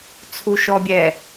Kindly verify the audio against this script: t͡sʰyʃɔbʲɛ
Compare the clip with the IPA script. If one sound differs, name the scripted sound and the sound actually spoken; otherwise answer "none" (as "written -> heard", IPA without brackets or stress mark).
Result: y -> u